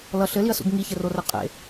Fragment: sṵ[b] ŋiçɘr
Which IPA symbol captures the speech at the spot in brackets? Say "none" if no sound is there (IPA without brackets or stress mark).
b